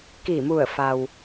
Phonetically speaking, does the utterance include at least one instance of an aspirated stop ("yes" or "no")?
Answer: no